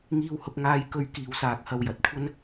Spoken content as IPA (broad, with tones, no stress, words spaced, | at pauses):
ŋiː˧whʊ˧k̚ŋaː˧j kɵ˧ɥ kiː˨wsaː˨k̚hɐ˨w jɐ˨t̚kʷʰɐ˥n